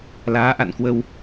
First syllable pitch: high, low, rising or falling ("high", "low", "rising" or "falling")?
rising